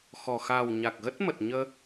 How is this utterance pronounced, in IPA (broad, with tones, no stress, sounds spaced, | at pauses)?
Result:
x ɔ˨˩ x a˨˩ w ɲ a˨˩ k̚ ɣ ə˦˥ t̚ m ə˨˩ t̚ ɲ əː˧